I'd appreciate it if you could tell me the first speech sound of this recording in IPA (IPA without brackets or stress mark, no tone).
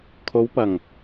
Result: kʰ